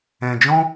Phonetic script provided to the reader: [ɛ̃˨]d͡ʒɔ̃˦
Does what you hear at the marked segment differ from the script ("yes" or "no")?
no